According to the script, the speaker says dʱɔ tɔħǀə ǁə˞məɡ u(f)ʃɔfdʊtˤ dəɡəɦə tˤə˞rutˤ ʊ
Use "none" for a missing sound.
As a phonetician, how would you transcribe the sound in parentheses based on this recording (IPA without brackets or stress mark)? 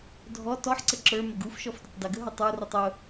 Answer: f